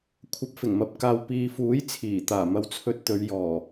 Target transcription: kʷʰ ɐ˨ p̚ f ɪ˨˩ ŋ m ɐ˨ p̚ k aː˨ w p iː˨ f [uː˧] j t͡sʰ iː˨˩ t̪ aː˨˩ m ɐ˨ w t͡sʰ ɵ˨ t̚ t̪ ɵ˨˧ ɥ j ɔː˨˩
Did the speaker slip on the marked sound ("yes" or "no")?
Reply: yes